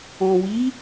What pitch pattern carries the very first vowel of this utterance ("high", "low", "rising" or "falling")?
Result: low